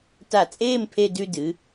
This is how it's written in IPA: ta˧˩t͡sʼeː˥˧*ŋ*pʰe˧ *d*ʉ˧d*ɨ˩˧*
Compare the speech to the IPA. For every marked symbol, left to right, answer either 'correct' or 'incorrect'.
incorrect: m, correct, correct

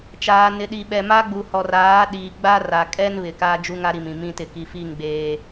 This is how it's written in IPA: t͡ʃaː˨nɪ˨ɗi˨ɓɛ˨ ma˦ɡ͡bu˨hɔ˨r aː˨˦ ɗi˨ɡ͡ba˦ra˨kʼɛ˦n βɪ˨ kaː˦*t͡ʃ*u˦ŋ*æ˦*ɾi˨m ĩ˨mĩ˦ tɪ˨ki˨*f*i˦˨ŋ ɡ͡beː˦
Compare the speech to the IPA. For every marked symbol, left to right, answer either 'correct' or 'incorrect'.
incorrect: d͡ʒ, incorrect: a˦, correct

